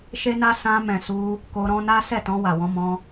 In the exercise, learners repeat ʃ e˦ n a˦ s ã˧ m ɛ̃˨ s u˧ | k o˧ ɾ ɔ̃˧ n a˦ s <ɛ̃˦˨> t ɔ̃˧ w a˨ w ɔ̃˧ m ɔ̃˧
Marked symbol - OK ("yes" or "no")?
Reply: no